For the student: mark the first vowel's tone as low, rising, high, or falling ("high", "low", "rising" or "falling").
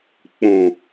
low